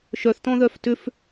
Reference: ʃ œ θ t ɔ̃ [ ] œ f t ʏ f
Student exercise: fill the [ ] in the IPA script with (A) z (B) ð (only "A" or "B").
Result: B